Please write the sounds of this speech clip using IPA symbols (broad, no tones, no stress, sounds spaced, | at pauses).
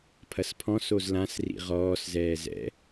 pʰ ɐ s pʰ ɔ̃ s o z l ã s r ḭ ʁ ɔː s z ɛː z ɛ̰